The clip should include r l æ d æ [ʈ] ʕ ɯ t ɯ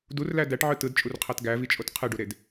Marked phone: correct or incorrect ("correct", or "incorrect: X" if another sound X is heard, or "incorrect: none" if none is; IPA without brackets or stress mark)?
correct